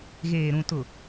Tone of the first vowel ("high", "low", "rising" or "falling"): low